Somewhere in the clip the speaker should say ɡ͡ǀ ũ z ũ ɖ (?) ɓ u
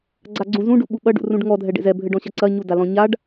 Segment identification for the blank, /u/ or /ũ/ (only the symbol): u